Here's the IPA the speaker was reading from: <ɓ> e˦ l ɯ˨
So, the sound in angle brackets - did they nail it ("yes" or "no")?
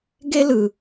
no